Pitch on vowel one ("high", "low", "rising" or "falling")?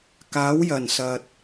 rising